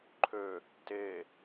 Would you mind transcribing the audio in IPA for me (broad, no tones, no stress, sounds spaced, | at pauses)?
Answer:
ǃʰ ø | t e